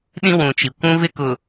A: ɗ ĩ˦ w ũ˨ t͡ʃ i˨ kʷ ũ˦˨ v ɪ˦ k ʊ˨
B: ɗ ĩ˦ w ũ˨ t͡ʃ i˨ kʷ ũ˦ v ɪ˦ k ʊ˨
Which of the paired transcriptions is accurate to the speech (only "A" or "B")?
B